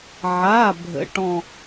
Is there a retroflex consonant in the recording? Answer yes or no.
yes